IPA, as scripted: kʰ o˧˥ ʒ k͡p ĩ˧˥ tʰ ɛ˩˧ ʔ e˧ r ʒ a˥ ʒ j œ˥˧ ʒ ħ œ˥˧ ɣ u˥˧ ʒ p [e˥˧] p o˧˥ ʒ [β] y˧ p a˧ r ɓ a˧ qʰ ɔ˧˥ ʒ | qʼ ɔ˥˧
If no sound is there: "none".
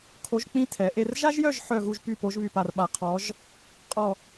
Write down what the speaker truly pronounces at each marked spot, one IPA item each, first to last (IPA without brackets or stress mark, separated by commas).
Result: y˥˧, β